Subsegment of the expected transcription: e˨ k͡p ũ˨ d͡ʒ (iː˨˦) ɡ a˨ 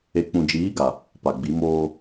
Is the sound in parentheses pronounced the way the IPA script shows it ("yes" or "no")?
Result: yes